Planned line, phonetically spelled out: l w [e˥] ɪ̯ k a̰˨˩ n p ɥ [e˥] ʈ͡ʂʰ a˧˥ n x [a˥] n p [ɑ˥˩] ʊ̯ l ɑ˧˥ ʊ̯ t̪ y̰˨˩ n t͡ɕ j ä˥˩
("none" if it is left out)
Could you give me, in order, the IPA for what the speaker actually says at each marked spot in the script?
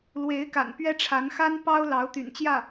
e˧˥, ɛ˥, a˥, ɑ˥

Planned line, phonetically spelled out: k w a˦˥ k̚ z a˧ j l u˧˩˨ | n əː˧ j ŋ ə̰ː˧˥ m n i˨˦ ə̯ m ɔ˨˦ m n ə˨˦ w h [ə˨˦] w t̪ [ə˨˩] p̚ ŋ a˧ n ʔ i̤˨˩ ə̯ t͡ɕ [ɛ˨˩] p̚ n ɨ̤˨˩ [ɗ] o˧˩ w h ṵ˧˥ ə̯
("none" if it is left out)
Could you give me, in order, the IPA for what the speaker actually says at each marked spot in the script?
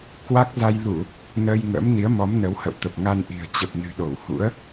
ə̰˧˨, ə˨˩, ə˨˩, ɗ

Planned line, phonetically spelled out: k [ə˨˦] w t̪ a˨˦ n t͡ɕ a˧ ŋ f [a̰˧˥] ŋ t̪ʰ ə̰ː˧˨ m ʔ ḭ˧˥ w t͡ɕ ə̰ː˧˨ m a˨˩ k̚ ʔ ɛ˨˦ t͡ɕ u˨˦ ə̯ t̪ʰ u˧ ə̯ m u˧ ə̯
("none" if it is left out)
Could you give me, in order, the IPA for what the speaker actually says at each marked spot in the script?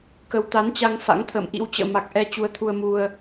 ə˨˦, a̰˧˥

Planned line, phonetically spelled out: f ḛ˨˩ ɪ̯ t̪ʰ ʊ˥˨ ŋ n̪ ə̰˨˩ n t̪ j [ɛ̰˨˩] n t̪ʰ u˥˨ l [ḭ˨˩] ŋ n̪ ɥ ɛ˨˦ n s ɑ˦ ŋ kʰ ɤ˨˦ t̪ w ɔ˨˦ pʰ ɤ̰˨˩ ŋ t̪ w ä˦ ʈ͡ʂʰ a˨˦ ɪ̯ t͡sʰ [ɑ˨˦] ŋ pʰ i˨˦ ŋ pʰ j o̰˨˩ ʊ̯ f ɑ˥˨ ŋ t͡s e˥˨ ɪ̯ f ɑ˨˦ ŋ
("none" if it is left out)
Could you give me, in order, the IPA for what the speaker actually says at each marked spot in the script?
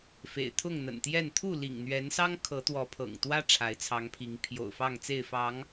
ɛ˥˨, ḭ˨˩, ɑ˨˦

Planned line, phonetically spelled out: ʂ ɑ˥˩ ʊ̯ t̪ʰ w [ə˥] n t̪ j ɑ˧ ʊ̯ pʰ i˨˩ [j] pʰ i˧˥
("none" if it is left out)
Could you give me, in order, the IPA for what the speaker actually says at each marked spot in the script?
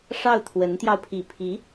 ə˧˥, none

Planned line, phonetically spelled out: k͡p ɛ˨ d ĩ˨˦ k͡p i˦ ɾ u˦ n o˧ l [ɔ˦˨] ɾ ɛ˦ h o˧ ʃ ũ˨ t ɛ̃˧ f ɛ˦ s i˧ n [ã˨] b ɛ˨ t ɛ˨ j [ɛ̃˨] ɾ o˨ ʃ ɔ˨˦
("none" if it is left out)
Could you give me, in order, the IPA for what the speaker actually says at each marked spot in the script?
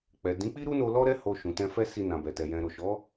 ɔ˦, ã˨, ɛ̃˨

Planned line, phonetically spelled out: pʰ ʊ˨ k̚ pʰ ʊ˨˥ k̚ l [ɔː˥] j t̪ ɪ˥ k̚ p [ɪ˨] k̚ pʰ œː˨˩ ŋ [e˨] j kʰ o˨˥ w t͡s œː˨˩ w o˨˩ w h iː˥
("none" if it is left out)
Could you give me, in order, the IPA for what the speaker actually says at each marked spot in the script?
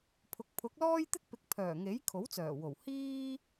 ɔː˥, ɪ˨˥, e˨˥

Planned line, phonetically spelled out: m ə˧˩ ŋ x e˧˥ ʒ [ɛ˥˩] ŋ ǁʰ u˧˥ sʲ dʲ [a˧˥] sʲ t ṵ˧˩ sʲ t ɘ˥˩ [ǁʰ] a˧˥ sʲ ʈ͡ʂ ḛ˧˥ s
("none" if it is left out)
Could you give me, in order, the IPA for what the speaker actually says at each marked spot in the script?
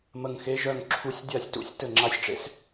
œ˥˩, a˥˩, ŋ͡ǁ

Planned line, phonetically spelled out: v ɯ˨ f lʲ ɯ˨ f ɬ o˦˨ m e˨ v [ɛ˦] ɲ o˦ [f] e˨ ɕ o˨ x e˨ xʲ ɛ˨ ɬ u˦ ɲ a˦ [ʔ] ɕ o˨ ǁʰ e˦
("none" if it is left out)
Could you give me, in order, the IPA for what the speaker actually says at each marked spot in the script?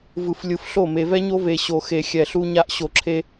ɛ˦, v, ʔ

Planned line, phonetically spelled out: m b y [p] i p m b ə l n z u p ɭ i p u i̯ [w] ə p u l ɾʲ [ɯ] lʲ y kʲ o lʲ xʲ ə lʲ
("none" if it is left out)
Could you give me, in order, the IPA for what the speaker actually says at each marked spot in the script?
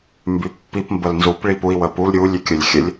pː, w, u

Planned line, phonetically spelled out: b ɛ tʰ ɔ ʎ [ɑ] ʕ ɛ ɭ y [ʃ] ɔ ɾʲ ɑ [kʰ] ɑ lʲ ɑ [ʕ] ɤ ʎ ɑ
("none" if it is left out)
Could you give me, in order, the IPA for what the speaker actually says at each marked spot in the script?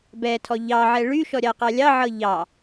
ɑ, ʃ, q, ʕ

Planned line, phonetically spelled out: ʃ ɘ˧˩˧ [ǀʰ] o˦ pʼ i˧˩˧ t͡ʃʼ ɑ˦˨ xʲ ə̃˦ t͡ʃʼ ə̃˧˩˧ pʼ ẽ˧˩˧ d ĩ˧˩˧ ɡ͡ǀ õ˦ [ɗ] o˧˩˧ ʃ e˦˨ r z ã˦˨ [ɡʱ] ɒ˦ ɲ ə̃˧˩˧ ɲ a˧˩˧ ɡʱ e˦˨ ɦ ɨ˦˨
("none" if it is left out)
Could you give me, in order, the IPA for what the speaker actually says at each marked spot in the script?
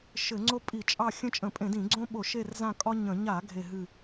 ŋ͡ǀ, ɓ, kʼ

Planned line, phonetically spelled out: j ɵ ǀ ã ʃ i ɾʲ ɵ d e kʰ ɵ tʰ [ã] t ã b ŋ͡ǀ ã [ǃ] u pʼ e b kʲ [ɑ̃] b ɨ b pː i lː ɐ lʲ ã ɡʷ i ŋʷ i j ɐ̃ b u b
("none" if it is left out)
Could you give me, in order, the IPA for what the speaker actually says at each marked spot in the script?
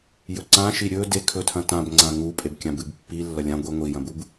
ɐ̃, ŋ, ã

